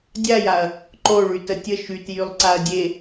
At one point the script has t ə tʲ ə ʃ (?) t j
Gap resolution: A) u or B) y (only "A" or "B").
B